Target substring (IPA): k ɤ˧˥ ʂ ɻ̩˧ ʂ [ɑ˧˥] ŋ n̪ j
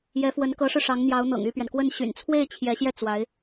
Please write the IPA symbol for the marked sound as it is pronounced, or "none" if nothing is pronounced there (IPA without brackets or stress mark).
ɑ˧˥